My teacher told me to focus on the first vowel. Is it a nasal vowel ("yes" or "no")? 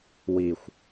no